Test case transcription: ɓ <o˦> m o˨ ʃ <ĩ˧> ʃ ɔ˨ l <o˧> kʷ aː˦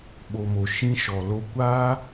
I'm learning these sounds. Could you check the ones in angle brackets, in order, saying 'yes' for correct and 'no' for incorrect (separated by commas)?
no, yes, yes